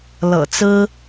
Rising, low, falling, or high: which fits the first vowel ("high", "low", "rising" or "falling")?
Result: low